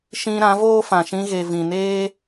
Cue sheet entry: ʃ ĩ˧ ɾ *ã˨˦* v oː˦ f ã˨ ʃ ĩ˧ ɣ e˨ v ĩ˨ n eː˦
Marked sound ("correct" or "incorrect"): correct